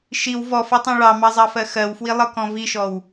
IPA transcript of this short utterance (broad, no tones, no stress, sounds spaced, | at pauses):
ʃ i w v ɔ f ɤ tˤ ɑ̃ ɭ ɑ m ɑ zˤ ɑ f ɜ x ɜ w f w i lˠ ɤ k ɔ̃ v i ʃ ɔ w